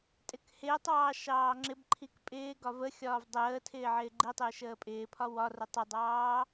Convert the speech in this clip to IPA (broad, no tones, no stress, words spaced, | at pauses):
tʼɪkhɪːtˤɑː ʃɑːŋ͡ǁɪbǃʰik pʼɪː ɡɒvəxʲɒːv dˤəː tʰɪːʕɪːɡ͡ǃitˤɪː ʃəːpʼɪːpʰɒ wɒrʊtˤ ʊdˤɑː